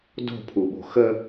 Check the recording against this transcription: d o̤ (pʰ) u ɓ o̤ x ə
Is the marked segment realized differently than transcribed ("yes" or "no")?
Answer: no